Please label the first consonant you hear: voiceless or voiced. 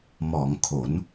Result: voiced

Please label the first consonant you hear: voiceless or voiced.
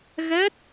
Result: voiced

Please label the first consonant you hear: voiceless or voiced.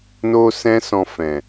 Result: voiced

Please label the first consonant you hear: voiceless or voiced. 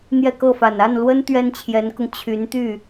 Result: voiced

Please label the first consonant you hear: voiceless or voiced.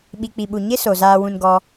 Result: voiced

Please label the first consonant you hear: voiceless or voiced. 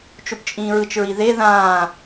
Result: voiceless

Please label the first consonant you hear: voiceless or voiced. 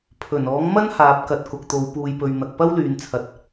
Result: voiceless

